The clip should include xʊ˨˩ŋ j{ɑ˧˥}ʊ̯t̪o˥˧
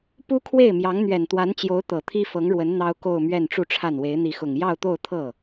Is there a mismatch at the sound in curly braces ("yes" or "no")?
yes